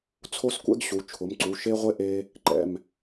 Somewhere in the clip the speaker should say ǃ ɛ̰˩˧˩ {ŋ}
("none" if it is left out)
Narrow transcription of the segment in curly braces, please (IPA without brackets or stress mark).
m